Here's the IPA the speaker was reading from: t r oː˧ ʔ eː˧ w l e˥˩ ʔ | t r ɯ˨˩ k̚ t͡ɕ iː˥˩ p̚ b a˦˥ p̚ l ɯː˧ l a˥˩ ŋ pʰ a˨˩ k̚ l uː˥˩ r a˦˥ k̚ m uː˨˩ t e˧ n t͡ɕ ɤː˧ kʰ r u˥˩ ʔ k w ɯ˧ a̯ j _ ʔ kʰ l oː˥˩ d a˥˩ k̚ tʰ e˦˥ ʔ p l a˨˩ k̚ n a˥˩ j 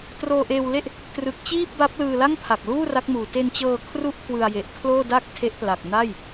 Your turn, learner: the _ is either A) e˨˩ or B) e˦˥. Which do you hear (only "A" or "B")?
A